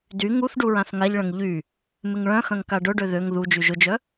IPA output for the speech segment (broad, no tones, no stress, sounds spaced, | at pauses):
d y ŋ u θ ɖ u ɹ ã θ ŋ a ʎ ɭ ɐ̃ ŋ ʎ y | m ɪ ŋ ɭ œ̃ x ɐ̃ ŋ k a ɖ ʊ ɖ ø ð ø ŋ ð u d͡ʒ y ʒ ʊ d͡ʒ œ